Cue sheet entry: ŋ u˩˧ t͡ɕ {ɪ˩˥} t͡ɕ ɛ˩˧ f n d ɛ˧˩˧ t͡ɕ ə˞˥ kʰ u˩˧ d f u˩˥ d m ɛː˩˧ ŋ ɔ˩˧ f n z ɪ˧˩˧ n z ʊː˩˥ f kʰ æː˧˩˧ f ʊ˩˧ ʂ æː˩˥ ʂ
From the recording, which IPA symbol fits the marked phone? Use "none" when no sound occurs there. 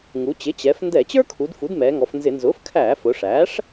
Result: ɪ˩˥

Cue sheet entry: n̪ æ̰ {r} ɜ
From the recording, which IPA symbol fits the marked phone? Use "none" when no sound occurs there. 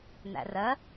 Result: r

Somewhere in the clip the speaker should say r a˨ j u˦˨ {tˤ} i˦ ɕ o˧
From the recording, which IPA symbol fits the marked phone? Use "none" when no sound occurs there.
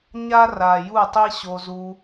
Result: tˤ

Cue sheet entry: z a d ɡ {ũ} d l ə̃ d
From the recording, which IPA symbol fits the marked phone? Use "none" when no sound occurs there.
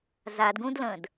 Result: ũ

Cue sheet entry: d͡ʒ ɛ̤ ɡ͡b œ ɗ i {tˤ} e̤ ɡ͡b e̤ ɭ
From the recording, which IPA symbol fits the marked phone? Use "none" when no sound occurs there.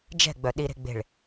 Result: ɾ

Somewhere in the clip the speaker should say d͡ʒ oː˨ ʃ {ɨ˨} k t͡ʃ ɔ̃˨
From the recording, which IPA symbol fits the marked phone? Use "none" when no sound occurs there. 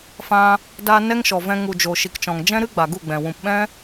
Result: i˨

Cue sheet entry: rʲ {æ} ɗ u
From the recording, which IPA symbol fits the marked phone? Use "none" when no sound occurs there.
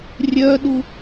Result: œ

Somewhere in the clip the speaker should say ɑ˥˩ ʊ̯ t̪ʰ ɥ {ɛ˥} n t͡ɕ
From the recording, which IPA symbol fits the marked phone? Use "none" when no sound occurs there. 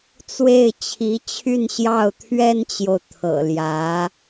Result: ɛ˥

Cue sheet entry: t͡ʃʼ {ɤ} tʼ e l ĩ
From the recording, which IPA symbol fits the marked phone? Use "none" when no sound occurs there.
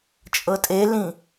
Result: ɤ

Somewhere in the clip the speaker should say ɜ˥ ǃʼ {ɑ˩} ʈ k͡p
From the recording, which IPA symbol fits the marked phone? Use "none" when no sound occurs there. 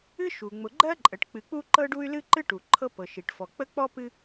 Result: ə˩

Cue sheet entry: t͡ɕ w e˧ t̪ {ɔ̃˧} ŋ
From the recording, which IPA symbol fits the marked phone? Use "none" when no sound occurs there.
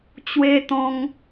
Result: ɔ̃˧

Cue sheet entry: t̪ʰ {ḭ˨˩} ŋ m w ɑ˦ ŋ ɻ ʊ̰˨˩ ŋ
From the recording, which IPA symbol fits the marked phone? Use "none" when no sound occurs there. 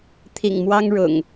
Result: ḭ˨˩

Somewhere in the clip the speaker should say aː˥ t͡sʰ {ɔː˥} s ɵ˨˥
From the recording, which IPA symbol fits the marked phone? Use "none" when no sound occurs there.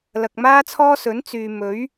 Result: ɔː˥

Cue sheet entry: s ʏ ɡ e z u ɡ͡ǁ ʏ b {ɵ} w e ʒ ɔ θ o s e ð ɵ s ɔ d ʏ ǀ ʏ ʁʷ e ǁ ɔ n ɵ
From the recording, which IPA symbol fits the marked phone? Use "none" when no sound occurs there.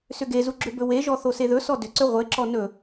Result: ɵ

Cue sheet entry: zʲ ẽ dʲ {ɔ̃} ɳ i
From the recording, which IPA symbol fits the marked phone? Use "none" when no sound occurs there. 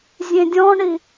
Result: ɔ̃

